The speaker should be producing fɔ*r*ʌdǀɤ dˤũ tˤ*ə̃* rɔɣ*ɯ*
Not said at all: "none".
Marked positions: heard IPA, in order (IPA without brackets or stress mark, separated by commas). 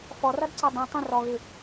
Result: r, ə̃, ɯ